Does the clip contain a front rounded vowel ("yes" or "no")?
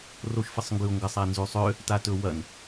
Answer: yes